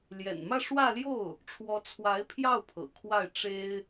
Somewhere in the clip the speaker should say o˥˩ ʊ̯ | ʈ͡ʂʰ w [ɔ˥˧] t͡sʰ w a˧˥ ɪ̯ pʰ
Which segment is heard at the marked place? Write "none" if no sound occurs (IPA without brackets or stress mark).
ɔ˧˥